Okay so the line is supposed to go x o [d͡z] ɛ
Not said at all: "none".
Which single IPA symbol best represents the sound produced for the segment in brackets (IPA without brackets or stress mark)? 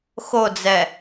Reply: d͡z